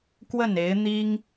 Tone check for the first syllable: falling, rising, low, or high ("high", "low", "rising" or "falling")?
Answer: falling